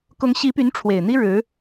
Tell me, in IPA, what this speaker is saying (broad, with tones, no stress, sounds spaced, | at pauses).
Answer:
k ʊ˧˥ ŋ ɕ i˧˥ p y˧˥ n ʈ͡ʂʰ w e˨˩ ɪ̯ n̪ i˥ ɻ ɻ̩˧˥